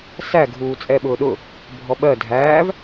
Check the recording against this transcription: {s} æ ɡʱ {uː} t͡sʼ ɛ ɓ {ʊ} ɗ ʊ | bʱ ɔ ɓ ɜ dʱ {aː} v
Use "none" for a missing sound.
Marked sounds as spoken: s, uː, ʊː, æː

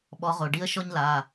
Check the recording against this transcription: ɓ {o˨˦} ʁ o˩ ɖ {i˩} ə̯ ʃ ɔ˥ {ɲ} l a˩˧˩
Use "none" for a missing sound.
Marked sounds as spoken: ɔ˨˦, i˥, ɲ

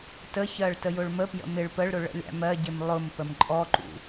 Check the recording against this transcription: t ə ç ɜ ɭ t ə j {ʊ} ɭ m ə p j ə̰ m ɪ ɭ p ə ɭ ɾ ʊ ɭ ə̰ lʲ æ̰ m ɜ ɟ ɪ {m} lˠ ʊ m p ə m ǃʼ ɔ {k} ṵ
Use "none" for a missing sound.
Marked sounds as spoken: ʊ, m, ǃ

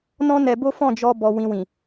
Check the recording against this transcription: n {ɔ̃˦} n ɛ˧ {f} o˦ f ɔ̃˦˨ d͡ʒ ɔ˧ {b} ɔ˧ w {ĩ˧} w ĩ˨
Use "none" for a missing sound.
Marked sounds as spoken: ɔ̃˦, b, b, ĩ˧

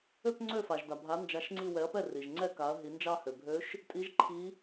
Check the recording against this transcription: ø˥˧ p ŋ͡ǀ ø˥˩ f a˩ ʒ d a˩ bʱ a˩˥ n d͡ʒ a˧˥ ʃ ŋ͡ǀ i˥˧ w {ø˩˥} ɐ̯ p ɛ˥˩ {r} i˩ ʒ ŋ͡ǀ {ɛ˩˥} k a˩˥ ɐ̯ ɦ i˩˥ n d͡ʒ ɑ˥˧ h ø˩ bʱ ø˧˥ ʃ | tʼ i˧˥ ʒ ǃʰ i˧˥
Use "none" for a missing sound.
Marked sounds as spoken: ɛ˩˥, r, ɛ˥˧

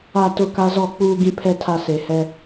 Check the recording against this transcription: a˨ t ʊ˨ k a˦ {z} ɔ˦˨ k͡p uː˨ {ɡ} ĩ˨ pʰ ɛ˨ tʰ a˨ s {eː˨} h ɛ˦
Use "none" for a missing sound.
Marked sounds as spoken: z, ɡ, e˨

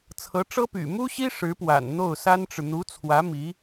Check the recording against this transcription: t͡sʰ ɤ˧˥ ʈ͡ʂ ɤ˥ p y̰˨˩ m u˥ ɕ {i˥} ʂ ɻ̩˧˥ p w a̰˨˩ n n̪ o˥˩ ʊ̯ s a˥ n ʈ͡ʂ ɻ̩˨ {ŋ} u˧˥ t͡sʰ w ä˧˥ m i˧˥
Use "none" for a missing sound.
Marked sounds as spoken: i˥, n̪

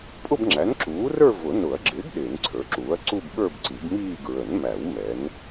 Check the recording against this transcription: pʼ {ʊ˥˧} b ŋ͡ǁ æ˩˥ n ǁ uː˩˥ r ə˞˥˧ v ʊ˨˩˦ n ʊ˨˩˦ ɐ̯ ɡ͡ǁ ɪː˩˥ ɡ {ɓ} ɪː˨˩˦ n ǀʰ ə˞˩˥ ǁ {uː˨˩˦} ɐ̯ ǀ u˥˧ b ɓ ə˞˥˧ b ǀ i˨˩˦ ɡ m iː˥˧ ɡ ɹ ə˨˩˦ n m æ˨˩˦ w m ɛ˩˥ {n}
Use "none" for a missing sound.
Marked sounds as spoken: ʊ˥˧, ɗ, uː˩˥, n

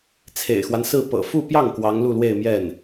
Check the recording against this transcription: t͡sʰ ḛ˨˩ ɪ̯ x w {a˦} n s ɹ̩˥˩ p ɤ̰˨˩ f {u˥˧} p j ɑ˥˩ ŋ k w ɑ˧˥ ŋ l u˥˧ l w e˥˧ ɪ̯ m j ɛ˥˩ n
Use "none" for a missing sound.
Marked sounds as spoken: a˦, u˥˧

